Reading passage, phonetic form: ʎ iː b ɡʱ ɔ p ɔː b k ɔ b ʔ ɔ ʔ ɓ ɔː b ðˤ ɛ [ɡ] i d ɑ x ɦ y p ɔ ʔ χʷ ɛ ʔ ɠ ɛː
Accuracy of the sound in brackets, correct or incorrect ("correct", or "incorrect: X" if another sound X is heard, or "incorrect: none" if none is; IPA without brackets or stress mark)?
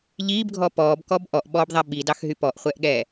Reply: incorrect: ɓ